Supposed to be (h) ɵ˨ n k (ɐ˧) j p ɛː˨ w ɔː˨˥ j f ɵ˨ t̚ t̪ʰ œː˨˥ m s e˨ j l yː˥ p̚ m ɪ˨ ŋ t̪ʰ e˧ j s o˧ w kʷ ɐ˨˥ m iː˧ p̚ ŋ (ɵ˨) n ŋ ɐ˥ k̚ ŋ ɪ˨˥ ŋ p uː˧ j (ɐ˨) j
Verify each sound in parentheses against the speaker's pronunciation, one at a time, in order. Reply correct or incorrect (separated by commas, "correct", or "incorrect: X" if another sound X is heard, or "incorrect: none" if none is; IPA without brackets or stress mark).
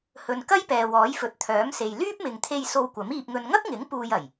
correct, incorrect: ɐ˥, incorrect: ɵ˧, incorrect: ɐ˨˩